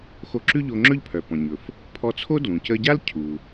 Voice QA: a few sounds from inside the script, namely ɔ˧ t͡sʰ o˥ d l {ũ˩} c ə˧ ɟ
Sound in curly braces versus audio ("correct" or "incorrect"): correct